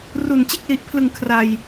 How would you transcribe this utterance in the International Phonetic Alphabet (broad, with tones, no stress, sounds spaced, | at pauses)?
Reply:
r u˨˩ n t͡ɕ e˦˥ k̚ l i˨˩ ʔ pʰ l ɯ˨˩ ŋ kʰ r a˨˩ j